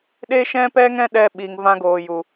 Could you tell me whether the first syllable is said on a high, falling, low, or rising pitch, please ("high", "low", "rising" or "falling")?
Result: high